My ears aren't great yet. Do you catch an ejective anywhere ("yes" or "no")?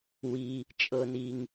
yes